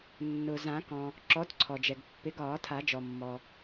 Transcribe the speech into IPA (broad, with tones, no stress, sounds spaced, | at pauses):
nː ʊ˩ z ã˨˩˦ k ɔ̃˩ | ǁ ɔ˨˦ d ǀʰ ɔ˩ d͡ʒ ɛ˩ ɡ pː ɪ˨˦ ɡ ɒː˨˩˦ tʰ a˨˩˦ d͡ʒ ɔ˩ mː ɔ˩